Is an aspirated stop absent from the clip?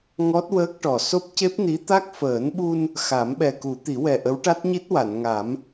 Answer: yes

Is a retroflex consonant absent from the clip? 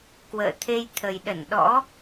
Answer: yes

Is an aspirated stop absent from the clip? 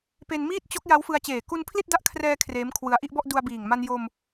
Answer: no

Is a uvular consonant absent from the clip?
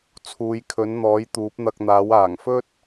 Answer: yes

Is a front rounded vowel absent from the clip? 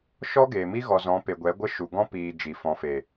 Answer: yes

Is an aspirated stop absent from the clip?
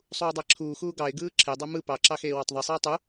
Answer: no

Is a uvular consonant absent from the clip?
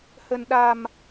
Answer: yes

